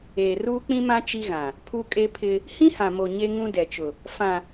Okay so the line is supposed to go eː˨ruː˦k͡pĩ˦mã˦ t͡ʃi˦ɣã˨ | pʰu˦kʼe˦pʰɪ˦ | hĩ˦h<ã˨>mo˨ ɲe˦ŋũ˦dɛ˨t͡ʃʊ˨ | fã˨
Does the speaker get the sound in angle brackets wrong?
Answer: no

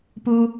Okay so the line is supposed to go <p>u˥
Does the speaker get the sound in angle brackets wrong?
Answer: no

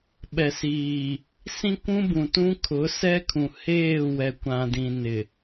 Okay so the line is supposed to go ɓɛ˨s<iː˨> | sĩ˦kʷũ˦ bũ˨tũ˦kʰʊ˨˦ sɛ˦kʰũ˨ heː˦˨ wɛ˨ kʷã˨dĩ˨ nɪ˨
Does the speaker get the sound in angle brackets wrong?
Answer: no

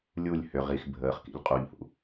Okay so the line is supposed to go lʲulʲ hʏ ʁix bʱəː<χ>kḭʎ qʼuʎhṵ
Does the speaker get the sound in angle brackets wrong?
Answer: no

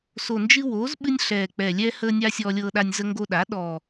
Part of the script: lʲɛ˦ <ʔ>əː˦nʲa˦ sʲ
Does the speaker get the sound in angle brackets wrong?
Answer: yes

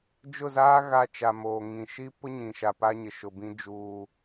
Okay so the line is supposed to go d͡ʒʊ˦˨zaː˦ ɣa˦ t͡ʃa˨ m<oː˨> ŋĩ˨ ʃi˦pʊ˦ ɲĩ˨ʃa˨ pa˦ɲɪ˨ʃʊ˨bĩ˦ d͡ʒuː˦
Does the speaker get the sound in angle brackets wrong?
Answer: no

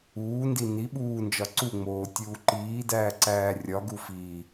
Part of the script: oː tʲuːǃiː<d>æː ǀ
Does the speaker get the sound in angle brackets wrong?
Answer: no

